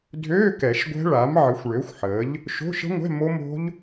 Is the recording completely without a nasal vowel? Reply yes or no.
yes